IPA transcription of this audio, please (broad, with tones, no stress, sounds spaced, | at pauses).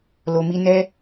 l o˨ m i˧ n ɛ˦